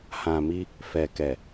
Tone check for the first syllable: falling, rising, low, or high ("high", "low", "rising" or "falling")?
low